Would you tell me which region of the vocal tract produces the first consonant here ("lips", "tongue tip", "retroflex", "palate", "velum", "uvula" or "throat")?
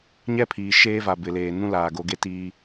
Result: palate